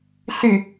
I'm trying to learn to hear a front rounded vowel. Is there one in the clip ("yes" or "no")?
yes